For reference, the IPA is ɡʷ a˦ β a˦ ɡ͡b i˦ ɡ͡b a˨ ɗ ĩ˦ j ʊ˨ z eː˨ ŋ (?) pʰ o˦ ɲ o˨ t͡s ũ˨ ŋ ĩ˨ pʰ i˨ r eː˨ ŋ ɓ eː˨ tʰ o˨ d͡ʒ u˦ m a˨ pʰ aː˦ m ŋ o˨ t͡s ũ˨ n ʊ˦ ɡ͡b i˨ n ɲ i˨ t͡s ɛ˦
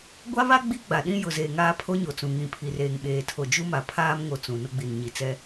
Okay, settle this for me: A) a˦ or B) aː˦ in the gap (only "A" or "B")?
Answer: B